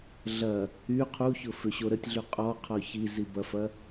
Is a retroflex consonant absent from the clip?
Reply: yes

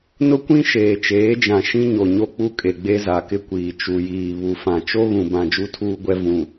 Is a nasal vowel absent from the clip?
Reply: no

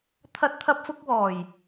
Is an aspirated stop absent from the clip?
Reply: no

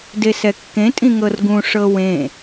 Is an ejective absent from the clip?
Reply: no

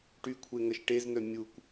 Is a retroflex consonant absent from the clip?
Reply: no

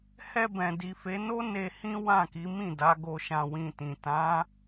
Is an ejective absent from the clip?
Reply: yes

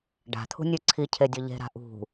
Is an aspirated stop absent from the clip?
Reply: no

